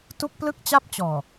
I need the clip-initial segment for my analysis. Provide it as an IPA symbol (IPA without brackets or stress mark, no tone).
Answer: t